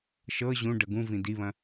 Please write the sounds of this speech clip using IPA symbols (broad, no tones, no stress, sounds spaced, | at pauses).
ʃ ɤ ʑ ũ ɖ ə ɡ ũ v ĩ d i β ɐ̃